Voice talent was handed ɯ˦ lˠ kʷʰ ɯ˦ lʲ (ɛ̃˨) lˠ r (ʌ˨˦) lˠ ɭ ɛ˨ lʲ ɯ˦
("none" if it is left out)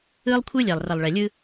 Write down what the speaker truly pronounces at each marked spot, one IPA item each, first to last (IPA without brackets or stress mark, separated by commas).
ɛ˨, ʌ˨